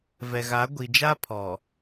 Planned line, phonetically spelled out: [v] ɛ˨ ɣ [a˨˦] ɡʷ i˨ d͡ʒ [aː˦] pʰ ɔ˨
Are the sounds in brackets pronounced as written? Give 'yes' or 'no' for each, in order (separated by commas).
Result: yes, yes, no